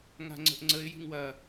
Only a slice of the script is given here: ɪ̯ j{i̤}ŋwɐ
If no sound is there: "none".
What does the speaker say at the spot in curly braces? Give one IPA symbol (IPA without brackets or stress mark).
i̤